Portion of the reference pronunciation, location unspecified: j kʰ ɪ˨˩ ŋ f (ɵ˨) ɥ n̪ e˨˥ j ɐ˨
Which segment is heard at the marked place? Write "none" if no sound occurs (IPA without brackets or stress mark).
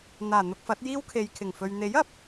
ɵ˨